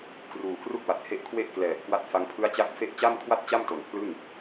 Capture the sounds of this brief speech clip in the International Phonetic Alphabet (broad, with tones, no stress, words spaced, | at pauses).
kruː˨˩kru˥˩k̚wa˨˩t̚he˦˥ʔ kʰwe˥˩ʔklɛː˨˩p̚kwa˦˥t̚ fa˧ŋpʰɯ˦˥a̯t͡ɕa˦˥k̚ fe˦˥ʔt͡ɕa˥˩mkʰwa˥˩t̚t͡ɕa˥˩m to˨˩npʰlɯ˥˩ŋ